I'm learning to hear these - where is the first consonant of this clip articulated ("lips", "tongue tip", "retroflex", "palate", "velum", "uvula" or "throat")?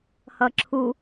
throat